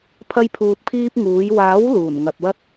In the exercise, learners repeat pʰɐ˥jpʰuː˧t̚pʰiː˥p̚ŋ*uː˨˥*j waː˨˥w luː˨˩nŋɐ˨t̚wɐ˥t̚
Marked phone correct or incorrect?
correct